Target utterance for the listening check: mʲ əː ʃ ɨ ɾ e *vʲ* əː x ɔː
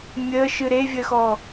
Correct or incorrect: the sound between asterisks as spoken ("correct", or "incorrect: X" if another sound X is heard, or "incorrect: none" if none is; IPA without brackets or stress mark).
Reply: correct